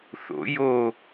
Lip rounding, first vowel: rounded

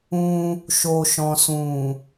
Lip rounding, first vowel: rounded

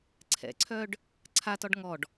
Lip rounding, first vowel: unrounded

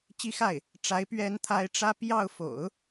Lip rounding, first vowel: unrounded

